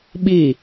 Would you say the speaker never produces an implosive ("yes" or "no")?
no